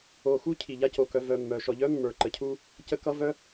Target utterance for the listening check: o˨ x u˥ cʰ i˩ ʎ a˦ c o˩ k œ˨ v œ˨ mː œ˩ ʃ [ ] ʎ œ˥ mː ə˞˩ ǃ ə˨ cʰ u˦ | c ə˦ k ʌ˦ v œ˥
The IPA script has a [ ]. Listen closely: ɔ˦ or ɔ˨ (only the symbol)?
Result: ɔ˨